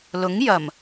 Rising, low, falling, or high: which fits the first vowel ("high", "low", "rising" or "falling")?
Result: rising